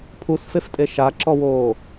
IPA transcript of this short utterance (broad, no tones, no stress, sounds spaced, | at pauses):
pʰ u s f e f tʼ e ʃ a ǁ ɔ w oː